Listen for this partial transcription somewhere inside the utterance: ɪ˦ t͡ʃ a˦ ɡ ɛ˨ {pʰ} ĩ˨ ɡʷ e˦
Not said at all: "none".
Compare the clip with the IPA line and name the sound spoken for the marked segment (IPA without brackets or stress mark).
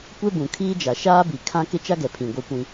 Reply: pʰ